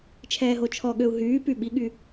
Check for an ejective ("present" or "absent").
absent